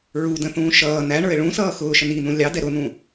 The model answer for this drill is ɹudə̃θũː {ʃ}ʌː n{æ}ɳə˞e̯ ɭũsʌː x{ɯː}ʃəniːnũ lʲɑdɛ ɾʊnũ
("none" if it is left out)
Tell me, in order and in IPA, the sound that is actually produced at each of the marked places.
ʃ, æ, ʊː

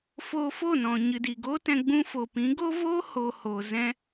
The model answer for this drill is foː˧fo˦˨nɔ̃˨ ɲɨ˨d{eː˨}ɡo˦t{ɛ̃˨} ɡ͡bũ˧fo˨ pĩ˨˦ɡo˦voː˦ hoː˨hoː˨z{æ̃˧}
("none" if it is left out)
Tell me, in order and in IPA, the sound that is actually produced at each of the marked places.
iː˨, ɛ̃˧, ɛ̃˧

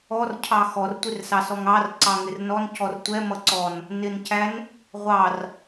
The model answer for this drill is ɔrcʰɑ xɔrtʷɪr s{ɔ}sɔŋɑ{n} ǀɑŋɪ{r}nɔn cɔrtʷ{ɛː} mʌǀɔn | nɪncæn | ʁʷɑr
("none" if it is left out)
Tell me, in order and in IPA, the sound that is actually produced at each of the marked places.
ɑ, r, r, ɛ

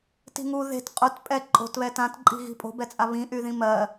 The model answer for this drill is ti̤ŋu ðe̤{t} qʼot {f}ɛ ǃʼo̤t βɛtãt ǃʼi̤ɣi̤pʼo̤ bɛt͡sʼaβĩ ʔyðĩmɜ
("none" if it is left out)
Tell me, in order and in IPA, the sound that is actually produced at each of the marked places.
t, pʼ

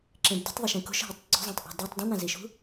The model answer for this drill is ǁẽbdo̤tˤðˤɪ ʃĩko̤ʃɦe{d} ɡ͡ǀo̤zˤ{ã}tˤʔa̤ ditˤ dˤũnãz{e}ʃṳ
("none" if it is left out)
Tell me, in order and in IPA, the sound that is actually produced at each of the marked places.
tˤ, ã, i

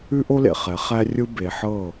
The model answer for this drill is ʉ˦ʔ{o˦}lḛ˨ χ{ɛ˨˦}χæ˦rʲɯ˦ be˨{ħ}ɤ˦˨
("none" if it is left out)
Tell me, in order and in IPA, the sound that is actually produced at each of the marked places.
o˦, ɛ˨˦, ħ

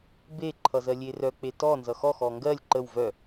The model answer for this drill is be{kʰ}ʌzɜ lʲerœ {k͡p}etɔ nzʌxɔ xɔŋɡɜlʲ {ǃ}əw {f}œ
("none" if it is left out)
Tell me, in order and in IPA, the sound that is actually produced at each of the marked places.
ǃʰ, k͡p, ǃ, v

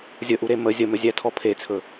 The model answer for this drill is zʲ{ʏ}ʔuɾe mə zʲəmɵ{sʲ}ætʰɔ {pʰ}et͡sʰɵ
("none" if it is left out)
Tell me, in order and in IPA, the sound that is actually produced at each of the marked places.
ə, zʲ, pʰ

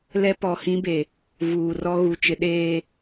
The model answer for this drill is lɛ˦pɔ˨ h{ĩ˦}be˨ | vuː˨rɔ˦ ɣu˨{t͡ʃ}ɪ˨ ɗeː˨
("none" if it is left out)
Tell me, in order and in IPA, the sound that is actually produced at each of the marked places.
ĩ˦, t͡ʃ

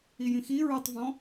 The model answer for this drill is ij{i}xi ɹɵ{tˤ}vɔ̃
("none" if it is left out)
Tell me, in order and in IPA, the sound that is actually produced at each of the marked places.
ĩ, tˤ

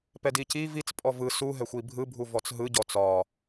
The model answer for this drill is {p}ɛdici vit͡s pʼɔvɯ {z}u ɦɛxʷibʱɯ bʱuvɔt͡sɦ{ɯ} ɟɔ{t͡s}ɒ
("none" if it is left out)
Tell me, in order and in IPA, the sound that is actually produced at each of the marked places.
p, s, ɯ, t͡s

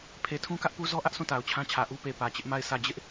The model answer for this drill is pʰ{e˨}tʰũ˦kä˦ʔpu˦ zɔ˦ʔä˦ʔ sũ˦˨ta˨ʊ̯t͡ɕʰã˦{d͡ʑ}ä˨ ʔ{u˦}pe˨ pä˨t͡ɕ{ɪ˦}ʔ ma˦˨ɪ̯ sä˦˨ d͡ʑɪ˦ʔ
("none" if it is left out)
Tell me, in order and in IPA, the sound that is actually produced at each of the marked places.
e˨, t͡ɕʰ, u˦, ɪ˦

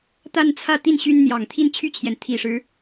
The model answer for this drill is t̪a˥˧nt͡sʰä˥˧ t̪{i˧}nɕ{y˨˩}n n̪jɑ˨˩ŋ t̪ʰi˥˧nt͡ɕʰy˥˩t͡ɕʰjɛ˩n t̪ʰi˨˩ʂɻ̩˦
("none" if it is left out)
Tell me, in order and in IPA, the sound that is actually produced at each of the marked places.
i˥˩, y˥

